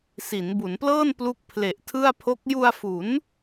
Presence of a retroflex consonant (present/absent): absent